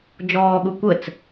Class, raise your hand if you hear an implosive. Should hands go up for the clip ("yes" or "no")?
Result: yes